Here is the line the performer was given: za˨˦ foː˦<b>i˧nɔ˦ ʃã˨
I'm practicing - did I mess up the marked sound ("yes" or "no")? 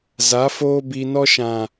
no